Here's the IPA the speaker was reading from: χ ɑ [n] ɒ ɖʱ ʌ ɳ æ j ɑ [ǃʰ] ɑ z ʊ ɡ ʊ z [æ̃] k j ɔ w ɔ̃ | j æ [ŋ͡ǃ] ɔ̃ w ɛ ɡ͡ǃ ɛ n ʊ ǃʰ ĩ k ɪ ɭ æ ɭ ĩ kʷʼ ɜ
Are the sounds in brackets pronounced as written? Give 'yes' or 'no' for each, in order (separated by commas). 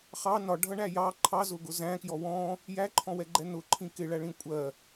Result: yes, yes, yes, no